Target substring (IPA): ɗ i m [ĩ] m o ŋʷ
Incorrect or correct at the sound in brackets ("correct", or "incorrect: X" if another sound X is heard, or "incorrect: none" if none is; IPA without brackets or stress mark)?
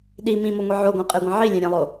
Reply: correct